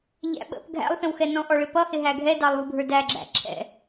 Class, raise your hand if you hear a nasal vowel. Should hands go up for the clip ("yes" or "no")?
yes